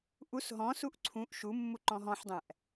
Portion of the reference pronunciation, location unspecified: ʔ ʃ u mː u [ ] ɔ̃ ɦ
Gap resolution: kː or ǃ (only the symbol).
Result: ǃ